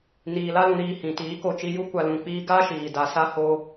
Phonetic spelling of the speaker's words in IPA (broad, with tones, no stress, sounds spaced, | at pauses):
n iː˨ l a˧ l ũ˨ ɾ iː˨ h ĩ˨ t iː˨˦ k o˦˨ t͡ʃ i˧ j u˦ kʷ a˧ l ũ˨ k͡p iː˧ ɡ a˦ ʃ iː˨ d a˧ s a˦ h o˧